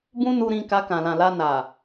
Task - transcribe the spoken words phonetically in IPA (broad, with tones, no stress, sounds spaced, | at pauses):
b ũ˦ n u˧ ɾ ĩ˧ k a˧ k ã˨ l ã˨ l a˧ n a˨